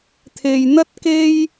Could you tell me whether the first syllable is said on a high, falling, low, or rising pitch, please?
low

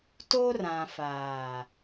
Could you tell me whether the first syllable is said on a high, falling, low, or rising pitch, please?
high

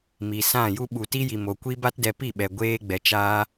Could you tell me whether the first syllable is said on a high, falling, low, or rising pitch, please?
low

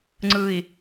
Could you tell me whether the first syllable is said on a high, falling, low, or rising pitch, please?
low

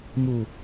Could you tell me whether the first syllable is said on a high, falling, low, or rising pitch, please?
low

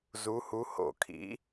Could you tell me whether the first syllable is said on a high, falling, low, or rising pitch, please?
rising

